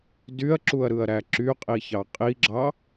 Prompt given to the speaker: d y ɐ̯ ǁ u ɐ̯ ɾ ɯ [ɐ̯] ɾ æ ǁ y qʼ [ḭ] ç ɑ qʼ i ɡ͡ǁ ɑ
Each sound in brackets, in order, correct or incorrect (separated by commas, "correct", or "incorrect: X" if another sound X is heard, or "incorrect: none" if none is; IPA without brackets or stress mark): correct, incorrect: i